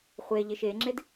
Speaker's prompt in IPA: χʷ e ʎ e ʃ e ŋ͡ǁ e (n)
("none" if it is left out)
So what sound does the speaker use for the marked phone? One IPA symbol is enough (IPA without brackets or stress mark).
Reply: d